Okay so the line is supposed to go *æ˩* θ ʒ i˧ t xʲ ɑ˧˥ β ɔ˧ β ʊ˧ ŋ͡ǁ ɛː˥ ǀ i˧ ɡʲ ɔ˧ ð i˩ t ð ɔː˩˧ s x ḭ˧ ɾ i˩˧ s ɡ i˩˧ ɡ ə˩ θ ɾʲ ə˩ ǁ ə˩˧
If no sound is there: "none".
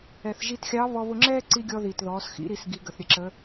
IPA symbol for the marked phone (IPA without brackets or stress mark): ɛ˩